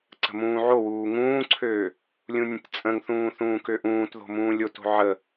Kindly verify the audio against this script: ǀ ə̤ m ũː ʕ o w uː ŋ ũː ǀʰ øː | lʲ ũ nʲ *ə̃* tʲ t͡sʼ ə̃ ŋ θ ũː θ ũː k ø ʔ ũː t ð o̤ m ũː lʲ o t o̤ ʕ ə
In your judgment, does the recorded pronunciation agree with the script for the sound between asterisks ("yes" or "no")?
yes